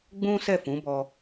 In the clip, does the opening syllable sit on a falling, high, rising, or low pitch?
high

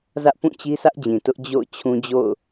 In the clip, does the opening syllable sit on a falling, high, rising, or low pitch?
high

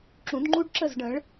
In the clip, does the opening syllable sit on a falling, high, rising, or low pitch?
rising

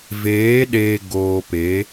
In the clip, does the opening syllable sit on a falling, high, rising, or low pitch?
rising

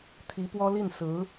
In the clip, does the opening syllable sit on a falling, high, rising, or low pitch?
rising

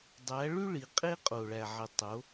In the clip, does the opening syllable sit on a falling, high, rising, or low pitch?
rising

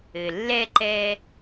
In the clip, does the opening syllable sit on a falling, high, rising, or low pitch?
low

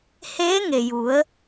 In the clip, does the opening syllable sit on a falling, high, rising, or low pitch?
rising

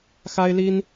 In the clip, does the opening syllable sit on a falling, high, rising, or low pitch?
high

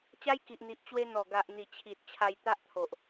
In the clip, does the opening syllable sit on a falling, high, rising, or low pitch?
high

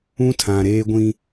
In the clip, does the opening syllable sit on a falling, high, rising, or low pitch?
high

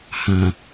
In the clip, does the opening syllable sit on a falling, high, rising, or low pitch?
low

